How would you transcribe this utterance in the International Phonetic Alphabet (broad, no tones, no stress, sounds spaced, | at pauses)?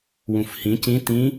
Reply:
w ũ f h ĩ c ĩ t ĩ